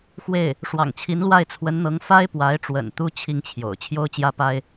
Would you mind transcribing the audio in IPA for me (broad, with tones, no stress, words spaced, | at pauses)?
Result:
xwe˥˩ɪ̯ | ʂwɑ̰˨˩ŋt͡ɕʰi˧˥nlwa˥˩ɪ̯ t͡sʰwə˧˥nn̪ɤ˧˥ŋ fa˥ɪ̯pwa˧˥ɪ̯ʈ͡ʂwə̰˨˩n t̪u˥ t͡ɕʰi˥˩ŋt͡ɕʰjo̰˨˩ʊ̯ t͡ɕʰjo˥ʊ̯t͡ɕjä˥pa˥ɪ̯